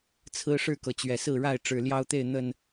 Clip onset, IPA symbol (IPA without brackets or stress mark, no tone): t͡sʰ